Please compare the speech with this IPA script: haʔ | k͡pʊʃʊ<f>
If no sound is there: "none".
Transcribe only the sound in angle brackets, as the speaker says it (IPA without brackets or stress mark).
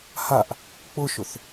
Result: θ